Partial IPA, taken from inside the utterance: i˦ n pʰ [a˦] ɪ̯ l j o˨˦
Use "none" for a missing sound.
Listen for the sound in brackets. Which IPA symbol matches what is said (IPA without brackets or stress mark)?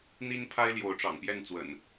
a˦